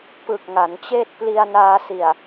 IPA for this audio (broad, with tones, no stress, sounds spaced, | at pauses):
p ɯ˨˩ k̚ ŋ a˩˦ n t͡ɕ eː˥˩ t̚ p l i˧ a̯ n aː˧ s i˨˩ a̯